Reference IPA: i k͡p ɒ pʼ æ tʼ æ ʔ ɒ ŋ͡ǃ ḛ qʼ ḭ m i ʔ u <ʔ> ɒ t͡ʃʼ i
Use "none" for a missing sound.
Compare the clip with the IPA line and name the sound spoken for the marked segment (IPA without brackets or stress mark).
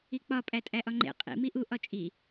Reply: ʔ